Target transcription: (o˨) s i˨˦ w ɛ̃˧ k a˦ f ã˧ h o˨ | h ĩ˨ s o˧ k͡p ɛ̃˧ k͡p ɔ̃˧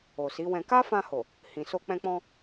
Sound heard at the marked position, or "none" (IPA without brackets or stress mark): o˨